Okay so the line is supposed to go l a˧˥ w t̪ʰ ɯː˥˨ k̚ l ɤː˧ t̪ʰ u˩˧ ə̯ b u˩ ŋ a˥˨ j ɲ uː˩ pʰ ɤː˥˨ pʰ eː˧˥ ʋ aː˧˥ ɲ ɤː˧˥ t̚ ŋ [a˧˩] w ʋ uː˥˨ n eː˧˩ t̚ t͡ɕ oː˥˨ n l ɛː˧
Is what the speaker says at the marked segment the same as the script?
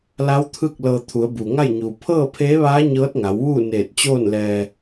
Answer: no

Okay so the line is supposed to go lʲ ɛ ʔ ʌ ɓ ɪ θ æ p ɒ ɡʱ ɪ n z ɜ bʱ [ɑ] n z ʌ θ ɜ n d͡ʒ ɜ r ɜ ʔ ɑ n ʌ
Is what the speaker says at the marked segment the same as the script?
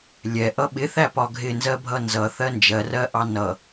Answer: no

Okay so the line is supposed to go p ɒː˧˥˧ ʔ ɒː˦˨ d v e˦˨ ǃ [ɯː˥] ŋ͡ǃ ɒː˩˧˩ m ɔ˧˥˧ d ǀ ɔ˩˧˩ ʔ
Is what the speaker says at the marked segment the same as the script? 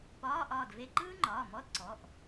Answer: yes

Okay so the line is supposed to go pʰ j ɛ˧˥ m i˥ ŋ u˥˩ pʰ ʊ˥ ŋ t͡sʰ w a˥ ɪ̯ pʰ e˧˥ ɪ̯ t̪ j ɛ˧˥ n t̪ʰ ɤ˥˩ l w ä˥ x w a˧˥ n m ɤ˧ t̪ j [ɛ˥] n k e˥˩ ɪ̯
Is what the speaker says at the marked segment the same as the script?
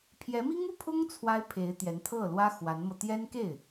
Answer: yes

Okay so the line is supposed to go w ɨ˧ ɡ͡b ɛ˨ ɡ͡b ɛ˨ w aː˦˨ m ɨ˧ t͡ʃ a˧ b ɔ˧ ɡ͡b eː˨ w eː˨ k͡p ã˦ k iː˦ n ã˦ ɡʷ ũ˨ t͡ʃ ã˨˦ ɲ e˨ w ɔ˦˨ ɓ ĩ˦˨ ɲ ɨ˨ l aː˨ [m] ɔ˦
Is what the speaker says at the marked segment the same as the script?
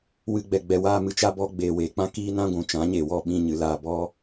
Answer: no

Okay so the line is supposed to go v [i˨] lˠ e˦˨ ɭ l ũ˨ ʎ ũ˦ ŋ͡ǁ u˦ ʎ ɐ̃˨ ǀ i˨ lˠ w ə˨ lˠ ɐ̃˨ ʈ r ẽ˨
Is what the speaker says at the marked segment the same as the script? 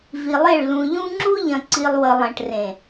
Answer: yes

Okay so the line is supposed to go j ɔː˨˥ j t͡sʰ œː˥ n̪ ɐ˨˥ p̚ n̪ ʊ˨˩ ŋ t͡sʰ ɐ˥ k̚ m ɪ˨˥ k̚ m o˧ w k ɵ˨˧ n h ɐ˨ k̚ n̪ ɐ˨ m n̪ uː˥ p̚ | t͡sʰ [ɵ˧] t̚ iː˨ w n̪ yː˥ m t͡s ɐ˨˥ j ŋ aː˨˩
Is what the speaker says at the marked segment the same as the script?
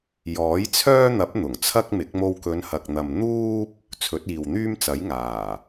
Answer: no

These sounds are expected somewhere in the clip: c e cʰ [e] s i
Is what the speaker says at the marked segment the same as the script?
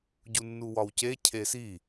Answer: yes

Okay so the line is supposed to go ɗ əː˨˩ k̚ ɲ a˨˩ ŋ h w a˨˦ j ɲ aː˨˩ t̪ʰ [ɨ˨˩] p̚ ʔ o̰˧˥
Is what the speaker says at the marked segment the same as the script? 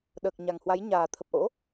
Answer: no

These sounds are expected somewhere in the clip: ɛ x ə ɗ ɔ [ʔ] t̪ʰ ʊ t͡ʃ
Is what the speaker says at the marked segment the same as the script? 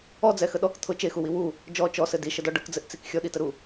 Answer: no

